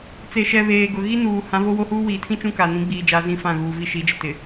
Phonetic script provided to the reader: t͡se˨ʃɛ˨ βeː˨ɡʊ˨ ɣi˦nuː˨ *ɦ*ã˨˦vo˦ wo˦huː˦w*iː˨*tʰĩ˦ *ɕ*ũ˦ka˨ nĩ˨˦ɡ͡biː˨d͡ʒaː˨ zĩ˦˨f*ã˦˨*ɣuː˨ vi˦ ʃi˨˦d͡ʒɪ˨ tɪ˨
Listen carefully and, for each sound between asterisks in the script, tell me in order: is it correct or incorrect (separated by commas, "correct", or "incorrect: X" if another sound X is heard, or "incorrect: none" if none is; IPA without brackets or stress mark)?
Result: incorrect: h, correct, incorrect: t͡ʃ, correct